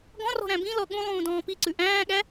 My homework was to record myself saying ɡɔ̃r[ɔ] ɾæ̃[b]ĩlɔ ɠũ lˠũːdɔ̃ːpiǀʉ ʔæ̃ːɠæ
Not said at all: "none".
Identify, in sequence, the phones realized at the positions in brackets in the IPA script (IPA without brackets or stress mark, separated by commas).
ɔ̤, b